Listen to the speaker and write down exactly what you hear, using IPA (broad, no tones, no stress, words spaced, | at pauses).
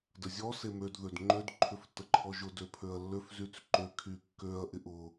dəzʲɔ semød ðødŋ͡ǃød ǃʰʏftːəǃʰɔʒʊ døpʰøɐ̯lːøf zyt͡sǃø kʰykːøɐ̯ ʔɪʔʊ